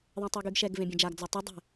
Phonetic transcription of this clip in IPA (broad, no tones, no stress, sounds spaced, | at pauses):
ðˤ ẽ tˤ e ɡ y ɡ ʃ ɛ ɡ v ẽ bʲ ɛ̃ d͡ʒ a ɡ d͡z ɔ tˤ y dˤ ɛ̤